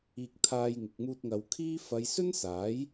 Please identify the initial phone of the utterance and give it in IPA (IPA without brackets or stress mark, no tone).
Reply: iː